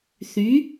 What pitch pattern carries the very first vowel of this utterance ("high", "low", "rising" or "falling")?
rising